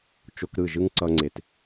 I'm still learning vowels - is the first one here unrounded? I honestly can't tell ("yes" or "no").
no